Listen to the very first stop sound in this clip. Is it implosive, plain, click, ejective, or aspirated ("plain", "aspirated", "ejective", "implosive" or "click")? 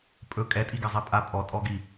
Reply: ejective